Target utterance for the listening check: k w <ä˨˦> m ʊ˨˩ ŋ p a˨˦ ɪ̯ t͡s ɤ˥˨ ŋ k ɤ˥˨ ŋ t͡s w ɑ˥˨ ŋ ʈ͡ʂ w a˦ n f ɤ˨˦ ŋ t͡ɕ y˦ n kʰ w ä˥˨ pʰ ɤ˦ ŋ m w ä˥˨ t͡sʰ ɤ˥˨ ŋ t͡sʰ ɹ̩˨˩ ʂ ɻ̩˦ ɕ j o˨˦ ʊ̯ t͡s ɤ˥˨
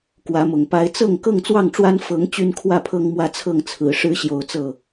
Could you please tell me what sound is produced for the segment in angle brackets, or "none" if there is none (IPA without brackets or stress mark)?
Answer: ä˨˦